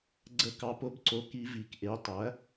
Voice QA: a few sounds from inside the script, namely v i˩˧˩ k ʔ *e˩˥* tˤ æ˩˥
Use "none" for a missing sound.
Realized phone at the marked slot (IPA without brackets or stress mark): e˩˥